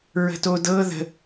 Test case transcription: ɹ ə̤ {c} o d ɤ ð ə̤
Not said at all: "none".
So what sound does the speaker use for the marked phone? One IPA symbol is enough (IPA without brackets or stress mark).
t